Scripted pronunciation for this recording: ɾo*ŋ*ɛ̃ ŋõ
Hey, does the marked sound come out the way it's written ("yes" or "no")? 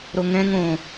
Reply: yes